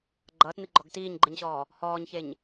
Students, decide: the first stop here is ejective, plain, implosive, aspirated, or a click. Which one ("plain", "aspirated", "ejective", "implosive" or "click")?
click